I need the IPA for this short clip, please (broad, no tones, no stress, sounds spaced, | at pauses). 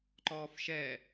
ǃ ɔː f ʃ ɛ